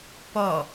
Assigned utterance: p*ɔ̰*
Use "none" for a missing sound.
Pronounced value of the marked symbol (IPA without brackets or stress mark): ɔ